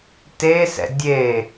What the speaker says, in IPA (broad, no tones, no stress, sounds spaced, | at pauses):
t e s ɛ̰ dʲ e